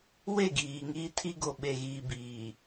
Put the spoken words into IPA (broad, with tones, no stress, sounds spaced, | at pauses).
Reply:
w e˦˨ ɡ iː˨ ŋ iː˦ tʰ i˦ ɡ o˨ ɓ e˨ ɣ iː˨ b iː˨